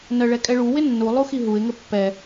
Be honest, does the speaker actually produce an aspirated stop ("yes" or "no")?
no